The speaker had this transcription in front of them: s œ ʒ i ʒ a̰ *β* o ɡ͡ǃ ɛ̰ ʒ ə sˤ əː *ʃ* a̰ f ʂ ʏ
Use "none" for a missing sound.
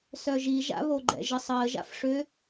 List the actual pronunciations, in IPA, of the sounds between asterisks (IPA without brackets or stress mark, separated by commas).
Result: β, ʒ